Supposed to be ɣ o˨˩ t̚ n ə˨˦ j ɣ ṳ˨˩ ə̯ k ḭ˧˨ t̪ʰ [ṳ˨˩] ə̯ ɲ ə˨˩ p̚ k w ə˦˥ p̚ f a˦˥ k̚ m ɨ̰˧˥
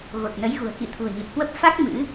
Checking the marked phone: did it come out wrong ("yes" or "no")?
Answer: no